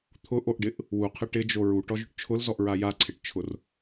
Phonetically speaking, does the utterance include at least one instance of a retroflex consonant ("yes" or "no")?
yes